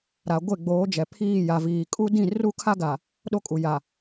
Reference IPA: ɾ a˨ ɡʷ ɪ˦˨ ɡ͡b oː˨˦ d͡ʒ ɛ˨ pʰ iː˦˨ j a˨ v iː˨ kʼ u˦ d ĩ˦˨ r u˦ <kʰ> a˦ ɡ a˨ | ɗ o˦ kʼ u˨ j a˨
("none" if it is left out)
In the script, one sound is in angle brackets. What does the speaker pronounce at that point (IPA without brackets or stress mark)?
kʰ